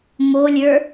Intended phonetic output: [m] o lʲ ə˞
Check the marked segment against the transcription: correct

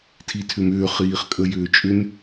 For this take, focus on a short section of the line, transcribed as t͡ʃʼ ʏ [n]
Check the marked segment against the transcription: correct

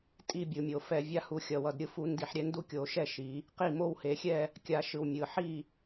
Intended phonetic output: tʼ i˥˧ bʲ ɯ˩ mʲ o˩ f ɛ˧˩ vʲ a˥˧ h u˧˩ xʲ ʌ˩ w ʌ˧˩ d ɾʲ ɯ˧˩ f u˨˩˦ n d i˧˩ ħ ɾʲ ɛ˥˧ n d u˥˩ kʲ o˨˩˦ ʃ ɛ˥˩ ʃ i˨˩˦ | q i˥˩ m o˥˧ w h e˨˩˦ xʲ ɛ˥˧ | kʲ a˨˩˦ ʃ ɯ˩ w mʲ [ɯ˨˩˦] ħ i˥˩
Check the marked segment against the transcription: incorrect: ɯ˩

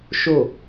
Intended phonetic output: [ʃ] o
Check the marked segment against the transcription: correct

